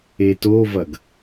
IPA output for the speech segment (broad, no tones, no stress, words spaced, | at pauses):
etovɐɡ